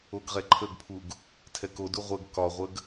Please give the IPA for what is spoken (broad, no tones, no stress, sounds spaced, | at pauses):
o ɡ ʁ ɛ ǃʰ ə ɡ pʰ u ɡ | tʰ ɛ k o d u ʁʷ ə ɡ k ɒ ʁʷ ə ɡ